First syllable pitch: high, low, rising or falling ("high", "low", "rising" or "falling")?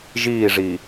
falling